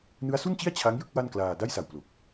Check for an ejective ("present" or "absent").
absent